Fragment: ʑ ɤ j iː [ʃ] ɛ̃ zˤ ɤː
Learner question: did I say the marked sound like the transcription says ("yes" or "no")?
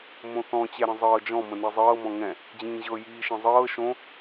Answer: yes